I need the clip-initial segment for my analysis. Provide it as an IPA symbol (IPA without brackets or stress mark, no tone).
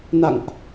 n